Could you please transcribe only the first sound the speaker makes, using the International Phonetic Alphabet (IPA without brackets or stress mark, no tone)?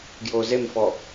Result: ɡ